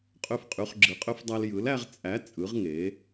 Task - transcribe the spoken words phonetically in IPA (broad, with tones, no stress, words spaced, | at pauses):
qʼø˦fqʼy˨˥χɡ͡ǁɯ˨˥qʼø˦f dˤæ˦l jɯ˨˥læ˦ʁ t͡sʼæ˨˥ t͡sʼɯ˨˥ʁŋe˨˥